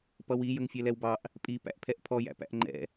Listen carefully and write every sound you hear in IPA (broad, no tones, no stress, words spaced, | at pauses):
pʌwi jəŋfʲɛlɛwbɑʔ | pʼipæ̰ʔ pʰɛʔpʰɔjæ̰ pæ̰ʔŋ͡ǃɛ̰